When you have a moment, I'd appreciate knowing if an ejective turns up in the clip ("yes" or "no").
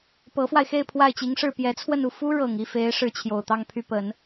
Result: no